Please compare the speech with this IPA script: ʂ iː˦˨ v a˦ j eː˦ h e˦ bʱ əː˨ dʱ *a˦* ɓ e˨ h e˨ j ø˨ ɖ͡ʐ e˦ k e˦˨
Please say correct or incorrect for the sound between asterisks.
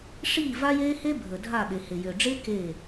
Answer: incorrect